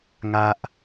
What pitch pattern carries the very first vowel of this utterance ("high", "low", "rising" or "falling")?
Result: high